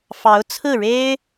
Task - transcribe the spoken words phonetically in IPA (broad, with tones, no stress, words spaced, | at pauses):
fɑ˧˥ʊ̯ t͡sʰɹ̩˥˩ɻe˥ɪ̯